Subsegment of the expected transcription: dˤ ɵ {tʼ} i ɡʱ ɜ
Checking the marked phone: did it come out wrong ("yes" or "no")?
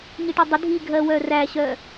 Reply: yes